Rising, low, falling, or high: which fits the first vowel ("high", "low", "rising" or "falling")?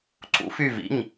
rising